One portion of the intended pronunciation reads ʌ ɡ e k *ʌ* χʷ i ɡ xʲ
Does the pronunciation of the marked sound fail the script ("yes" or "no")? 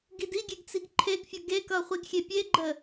no